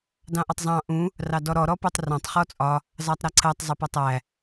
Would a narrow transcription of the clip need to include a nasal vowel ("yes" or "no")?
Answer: yes